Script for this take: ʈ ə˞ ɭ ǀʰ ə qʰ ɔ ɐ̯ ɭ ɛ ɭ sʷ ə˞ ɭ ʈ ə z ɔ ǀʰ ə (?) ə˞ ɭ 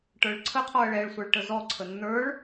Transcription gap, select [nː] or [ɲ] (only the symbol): nː